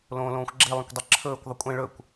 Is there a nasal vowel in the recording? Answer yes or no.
yes